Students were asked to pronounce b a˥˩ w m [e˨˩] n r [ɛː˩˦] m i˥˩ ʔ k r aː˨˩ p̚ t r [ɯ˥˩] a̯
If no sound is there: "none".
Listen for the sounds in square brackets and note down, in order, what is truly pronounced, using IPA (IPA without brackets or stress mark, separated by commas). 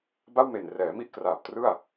e˨˩, ɛː˩˦, ɯ˥˩